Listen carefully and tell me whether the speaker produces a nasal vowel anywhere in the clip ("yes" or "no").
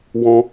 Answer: yes